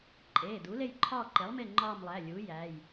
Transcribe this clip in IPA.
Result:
ǃʼ eː˩˧˩ d u˩˥ l e˦˨ j ǃʰ ɒː˦˨ ǃ e˩˥ lˠ m e˦˨ ŋ͡ǃ ɒː˦˨ m lˠ æ˩˧˩ lʲ uː˩˥ j æ˩˧˩ j

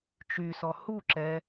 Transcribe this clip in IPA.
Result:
t͡ʃ y s ɔ h u ǁ ɛ

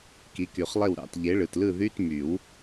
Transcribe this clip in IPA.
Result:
k i˩˥ k y˨˩˦ χ lˠ e˥˩ w ɾ ɑ̰˨˩˦ t ʎ e˩˥ ɭ ɯ˩ t l ɯ˥˩ ð y˧˥˧ t m y˨˩˦ w

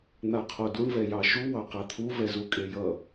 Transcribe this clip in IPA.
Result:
n̪ a qʰ o d u ɳ v ɛ j ɑ ʃ u w ɑ q a t̪ʰ u v ɛ z u kʼ e j ʌ

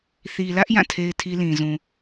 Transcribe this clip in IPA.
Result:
θ i˨ l ä˦ ʔ j ã˦˨ tʰ e˦ ɪ̯ tʰ i˦ l ĩ˨ z ũ˨

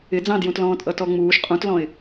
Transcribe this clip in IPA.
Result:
ɪ d͡z ɑ̃ d j ũ t l ɔ̃ː tʼ ʌ t ɔ ŋ͡m uː ʃ qʼ ũ t l ɔ̃ ɪ̯

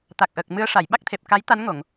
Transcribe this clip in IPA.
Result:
t̪ a˨˩ k̚ ʔ ə˨˩ k̚ m ɨ˧˥ ə̯ ʂ a˨˩˨ j ɓ a˦˥ k̚ t̪ʰ e˨˩ p̚ k a˧˥ j t̪ a˧˥ n ŋ o˨˩˨ ŋ

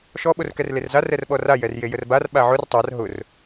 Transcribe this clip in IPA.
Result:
ʃ ɔ ɓ o r k ɛ r l e r z a r ɛ r ɓ ɔ r a j ɛ r j e j ə r b a r ɓ a ʕ ʊ r tˤ a r ɦ ʊ r

